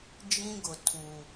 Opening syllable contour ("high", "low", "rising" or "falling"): high